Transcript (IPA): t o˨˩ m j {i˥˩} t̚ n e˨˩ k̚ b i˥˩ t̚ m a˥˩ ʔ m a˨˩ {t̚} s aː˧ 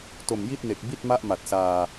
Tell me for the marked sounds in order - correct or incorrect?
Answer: correct, correct

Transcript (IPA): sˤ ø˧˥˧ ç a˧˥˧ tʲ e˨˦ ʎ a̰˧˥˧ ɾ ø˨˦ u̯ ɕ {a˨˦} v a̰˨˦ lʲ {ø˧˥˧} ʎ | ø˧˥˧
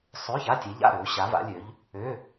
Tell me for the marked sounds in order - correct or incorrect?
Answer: correct, incorrect: ø˨˦

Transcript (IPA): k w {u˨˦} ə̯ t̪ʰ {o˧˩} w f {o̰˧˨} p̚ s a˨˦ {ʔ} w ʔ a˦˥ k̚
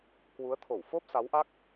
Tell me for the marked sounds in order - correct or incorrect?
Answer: correct, correct, incorrect: o˦˥, incorrect: none

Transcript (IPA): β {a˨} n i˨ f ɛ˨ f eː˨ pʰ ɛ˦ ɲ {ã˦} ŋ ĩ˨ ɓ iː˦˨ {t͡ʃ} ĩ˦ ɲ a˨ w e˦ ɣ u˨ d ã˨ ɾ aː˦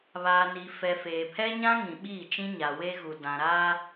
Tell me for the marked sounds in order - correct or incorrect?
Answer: incorrect: aː˨, correct, correct

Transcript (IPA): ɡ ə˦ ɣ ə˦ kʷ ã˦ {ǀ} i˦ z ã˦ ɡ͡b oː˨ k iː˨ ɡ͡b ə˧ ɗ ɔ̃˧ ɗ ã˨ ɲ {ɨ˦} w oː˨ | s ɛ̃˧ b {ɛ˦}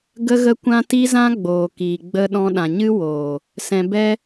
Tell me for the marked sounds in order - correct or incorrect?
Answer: incorrect: t, correct, correct

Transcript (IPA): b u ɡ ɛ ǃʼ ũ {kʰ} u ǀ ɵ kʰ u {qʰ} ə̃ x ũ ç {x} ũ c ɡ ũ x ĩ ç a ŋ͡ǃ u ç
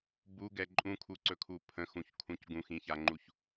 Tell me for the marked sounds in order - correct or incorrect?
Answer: correct, incorrect: pʰ, incorrect: kʰ

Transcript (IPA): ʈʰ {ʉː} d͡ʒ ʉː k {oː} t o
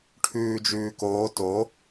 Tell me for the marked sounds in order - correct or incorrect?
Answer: correct, correct

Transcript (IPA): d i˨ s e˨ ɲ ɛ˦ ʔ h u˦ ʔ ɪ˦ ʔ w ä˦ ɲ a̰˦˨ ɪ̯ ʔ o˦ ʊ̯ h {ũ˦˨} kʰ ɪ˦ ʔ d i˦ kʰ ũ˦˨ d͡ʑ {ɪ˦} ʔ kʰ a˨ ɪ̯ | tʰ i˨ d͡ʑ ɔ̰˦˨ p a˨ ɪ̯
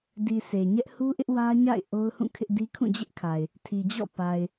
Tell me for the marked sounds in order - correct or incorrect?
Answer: correct, correct

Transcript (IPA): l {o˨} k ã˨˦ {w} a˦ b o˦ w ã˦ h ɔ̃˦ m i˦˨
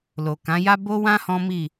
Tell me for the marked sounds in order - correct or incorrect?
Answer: correct, incorrect: j

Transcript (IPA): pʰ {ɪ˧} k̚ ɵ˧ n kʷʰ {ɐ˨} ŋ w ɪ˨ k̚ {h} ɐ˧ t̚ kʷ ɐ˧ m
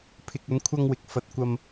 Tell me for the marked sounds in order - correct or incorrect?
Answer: correct, incorrect: ɐ˧, incorrect: f

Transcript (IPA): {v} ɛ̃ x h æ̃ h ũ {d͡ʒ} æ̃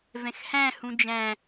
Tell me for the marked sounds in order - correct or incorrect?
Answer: correct, correct

